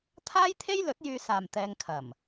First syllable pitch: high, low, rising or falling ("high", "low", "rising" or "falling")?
high